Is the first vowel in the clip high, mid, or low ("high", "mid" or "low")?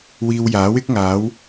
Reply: high